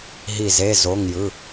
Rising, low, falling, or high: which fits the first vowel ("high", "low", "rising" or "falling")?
falling